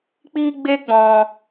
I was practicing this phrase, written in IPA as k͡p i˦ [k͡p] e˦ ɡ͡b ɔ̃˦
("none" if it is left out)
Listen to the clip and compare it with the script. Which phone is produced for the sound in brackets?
ɡ͡b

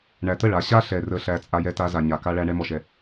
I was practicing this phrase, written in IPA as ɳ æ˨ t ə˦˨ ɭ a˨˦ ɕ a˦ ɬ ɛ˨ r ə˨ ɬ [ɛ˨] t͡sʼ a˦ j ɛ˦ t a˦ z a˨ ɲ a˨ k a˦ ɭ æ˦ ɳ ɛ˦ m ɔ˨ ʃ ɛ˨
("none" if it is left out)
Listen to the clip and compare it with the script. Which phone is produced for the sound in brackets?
æ˨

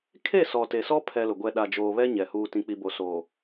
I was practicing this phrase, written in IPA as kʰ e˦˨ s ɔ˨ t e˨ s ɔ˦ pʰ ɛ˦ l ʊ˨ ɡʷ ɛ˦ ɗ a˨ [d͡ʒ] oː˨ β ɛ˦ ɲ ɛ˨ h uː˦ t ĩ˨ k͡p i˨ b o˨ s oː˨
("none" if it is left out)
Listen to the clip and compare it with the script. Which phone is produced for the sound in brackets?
d͡ʒ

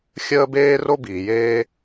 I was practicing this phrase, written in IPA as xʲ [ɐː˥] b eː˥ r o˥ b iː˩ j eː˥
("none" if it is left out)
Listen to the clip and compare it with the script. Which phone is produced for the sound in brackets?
əː˥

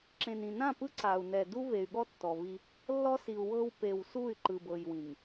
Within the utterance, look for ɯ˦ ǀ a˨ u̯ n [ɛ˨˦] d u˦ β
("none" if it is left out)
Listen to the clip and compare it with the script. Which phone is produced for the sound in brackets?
ɛ˨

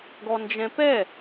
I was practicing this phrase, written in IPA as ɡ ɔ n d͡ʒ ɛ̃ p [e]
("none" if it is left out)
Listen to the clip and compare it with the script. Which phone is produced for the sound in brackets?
ɛ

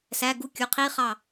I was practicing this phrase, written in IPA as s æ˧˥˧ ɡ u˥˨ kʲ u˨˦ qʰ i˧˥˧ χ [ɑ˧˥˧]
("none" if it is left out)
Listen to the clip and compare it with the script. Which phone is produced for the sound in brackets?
ɑ˥˨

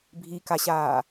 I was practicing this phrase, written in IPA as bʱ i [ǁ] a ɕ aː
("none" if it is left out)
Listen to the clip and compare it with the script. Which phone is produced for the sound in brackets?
k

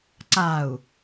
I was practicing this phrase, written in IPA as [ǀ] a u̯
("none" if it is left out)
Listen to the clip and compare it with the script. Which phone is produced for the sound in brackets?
ǀ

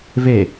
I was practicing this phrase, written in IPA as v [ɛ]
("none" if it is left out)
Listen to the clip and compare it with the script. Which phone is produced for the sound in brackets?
e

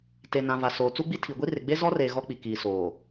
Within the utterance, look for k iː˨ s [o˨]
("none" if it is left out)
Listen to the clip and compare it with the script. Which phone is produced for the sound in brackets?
oː˨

